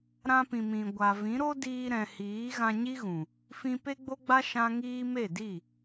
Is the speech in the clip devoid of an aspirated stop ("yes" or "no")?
yes